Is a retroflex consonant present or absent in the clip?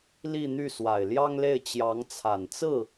absent